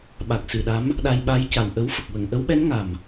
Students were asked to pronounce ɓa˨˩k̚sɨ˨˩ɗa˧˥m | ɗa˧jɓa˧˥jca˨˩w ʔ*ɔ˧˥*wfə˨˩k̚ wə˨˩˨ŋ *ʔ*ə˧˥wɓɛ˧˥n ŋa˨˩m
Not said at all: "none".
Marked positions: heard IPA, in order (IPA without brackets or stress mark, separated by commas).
ə˧˥, ʔ